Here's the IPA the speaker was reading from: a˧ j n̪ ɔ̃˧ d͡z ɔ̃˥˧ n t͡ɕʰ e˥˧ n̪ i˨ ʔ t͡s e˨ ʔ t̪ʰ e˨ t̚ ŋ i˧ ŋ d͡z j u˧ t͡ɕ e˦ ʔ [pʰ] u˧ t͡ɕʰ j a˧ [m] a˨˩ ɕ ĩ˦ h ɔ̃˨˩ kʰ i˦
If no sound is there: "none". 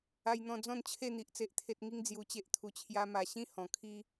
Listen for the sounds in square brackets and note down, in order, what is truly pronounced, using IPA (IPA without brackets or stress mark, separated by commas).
t̪ʰ, m